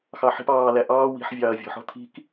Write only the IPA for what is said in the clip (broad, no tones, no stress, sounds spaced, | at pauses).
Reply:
x ɑ ħ i̤ p ɑː l æ ʔ ɑː w i̤ ħ vʲ ɑː ɐ̯ vʲ ɔ̤ ħ ɔ̤ t̪ʰ i̤ k